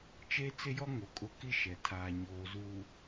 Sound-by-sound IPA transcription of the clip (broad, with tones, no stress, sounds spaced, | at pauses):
t͡ʃ e˦ t͡s ɪ˦ j ɔ˦ ŋ o˨ kʼ ʊ˦ k i˦ ʃ ɛ˨ tʰ aː˨ ɲ oː˨ z uː˨